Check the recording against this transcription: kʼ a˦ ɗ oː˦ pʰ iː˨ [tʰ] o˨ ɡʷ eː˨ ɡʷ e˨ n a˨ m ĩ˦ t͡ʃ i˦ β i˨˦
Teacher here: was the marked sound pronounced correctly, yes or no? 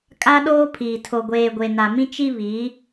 yes